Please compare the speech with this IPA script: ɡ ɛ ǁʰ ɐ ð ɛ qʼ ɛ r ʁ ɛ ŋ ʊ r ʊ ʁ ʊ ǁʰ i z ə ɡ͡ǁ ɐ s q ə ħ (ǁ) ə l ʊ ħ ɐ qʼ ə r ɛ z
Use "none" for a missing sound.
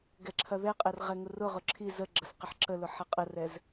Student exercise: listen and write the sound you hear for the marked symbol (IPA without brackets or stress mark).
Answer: ǁ